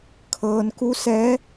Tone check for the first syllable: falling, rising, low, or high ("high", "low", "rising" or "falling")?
low